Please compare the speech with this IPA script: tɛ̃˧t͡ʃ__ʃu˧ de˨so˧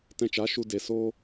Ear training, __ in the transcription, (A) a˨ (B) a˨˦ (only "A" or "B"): B